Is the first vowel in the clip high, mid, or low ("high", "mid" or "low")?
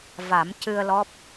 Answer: low